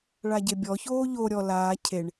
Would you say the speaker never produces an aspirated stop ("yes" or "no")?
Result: no